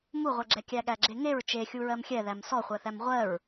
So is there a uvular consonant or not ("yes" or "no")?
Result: yes